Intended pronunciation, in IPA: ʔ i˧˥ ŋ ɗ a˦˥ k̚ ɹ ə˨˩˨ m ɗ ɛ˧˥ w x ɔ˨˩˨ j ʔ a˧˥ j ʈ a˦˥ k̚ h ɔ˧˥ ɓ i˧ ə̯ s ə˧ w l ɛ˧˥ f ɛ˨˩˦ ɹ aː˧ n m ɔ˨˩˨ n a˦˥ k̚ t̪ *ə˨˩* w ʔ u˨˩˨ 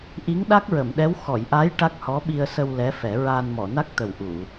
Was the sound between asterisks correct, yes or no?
yes